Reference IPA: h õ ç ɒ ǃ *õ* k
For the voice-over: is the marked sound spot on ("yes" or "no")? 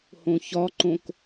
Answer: yes